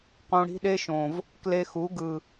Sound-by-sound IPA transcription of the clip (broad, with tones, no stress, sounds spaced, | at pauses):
q õ˧ ɽ i̤˦ ɗ e˦ ʃ õ˨ v | k l e˧ x u˨˦ ɡ ɯ˨